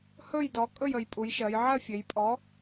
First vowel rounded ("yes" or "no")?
yes